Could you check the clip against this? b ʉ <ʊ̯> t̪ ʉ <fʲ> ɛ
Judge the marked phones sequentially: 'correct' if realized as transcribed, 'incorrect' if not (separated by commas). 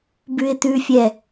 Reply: incorrect, correct